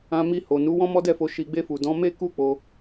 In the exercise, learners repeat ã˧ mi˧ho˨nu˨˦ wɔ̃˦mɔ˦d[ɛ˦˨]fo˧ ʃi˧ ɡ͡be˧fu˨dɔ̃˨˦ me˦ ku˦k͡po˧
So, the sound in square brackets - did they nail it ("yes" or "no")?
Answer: yes